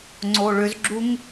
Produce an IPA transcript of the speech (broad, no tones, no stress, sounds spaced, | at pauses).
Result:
ŋ͡ǀ o ɭ ʏ z ɡ͡ǁ u ŋ